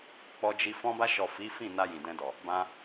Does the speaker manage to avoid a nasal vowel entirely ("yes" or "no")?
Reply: no